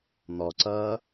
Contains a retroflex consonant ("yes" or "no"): no